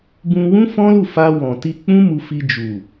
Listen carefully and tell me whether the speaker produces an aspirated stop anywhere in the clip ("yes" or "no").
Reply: no